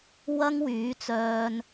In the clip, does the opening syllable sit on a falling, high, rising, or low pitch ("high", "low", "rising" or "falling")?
high